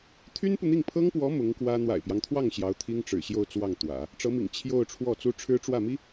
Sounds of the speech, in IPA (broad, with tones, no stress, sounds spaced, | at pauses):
t̪ʰ y˥ n p u˨ n̪ i˥˩ ŋ pʰ ɤ˥ ŋ p w ɔ˧˥ m ʊ˧˥ ŋ k w ä˥ n̪ w a̰˨˩ ɪ̯ p j ɑ˦ ŋ t̪ʰ w ɑ˥˩ ŋ ɕ j ɑ˧˥ ʊ̯ t̪ʰ i˥ ŋ ʈ͡ʂ ɻ̩˨˩ ɕ j o˥˧ ʊ̯ t͡s w ɑ˥˩ ŋ t̪ w ä̰˨˩˦ | ʈ͡ʂ ɤ˧˥ m ḭ˨˩ ŋ t͡ɕʰ j o˥˧ ʊ̯ ʈ͡ʂʰ w ɔ˥˩ t͡s u˥ ʈ͡ʂʰ ɻ̩˥ ʈ͡ʂ w ä˥˩ m i˥